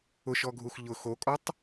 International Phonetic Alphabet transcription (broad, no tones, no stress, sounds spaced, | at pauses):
ʊ ʃ ɔ ɡʱ u x ʎ ʊ x o kʼ ɔ tˤ